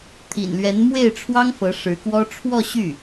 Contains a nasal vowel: no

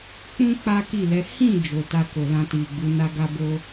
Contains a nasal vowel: yes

